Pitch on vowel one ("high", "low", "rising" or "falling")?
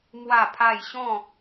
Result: falling